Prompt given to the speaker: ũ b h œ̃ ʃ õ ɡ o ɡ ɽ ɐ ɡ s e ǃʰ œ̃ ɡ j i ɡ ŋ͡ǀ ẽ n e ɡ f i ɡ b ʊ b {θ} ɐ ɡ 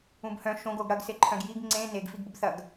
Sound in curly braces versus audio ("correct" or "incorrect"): correct